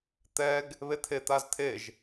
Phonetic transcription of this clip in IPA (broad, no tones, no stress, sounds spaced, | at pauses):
t̪ ɛ ɡ | β e t̪ʰ e t̪ a z t̪ʰ e ʒ